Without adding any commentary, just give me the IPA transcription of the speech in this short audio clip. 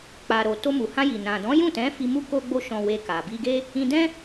k͡p a˨ ɾ o˨ t o˧ m u˨ h ã˧ j i˨ n ã˨ d ɔ̃˨˦ j ũ˦˨ t ɛ̃˨˦ f i˧ m u˦ k o˦ ɡ͡b o˦ ʃ ɔ̃˧ w e˧ k a˨ b i˧ ɡ e˦ | ĩ˧ d ɛ̃˦

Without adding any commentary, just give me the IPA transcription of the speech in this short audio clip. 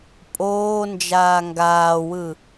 pʼ oː n d͡ʒ aː ŋ ɡ aː w ɯ

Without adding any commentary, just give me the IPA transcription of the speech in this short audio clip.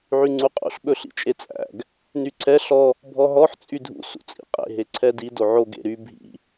ʕ y ŋ͡ǀ u qʼ ṵ ɬ ɓ ɵ ɬ ḭ t͡ʃʼ e t͡sʼ æ̰ ɡ | n y ǀʰ ɛ ɬ ɔ | bʱ ɔ ɦ ɔ ħ t͡sʼ y dʱ ṵ s ṵ t͡sʼ ḭ qʼ ḛ ɦ e ǀʰ ɛ d i d o ʕ o ɡ ḛ ɾ y bʱ ḭ

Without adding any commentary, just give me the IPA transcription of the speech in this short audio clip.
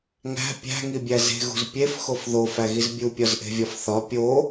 ŋ æ̤ pʲ æ̤ ŋ i bʲ æ z e̤ ɣ ṳ z pʲ e f x o f ð o f æ ɣ i z bʲ u pʲ ɒ z ʔ e̤ vʲ ɒ f θ ɒ pʲ o

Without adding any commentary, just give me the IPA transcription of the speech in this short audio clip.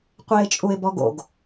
qʷ ɪː t͡ʃʼ u ɪ̯ b ɔ ɡ o̰ ɡ

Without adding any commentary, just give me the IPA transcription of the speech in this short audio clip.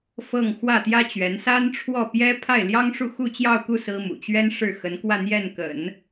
f ɤ˥˧ ŋ x w ä˥˩ t̪ j ä˥ t͡ɕ ɥ ɛ˧˥ n s a˥ n ʈ͡ʂʰ w ɔ˥˩ p j ɛ˥ pʰ a˥˩ ɪ̯ l j ɑ˥ ŋ ʂ u˥˧ x u˥˧ t͡ɕ j ɑ˥˧ ʊ̯ k u˥˩ s ɹ̩˥ m ṵ˨˩ t͡ɕ ɥ ɛ˥ n ʂ ɻ̩˥˩ x ə˧˥ n k w ä˥˧ n̪ j ɛ˥˩ n k ə̰˨˩˦ n

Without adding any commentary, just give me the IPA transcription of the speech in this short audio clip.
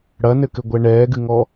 ɽ ɐ n ɘ k ɘ ɡʷ ɛ ɳ ɛː ɡ ɨ ŋ ɔ

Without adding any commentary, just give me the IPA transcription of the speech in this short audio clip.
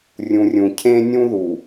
rʲ ũ˨ rʲ ũ˨ cʰ ẽ˦ nʲ ũ˦ ð u˨

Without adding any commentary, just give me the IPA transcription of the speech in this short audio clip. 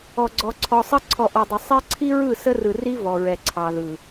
ɔ˨ ɡ͡ǀ ɔ˨ ǀʰ ɔ˨ sˤ ə˦ ǀʰ ɔ˨ ʔ ɔ˨ dˤ ə˨ sˤ ɛ˦ ǀʰ i˦ ɹ ɯ˦˨ s ə˦ r ɯ˨ r i˦ v ɔ˨ ɹ ɛ˨ ǀʰ ɑ˨ ð ɯ˨

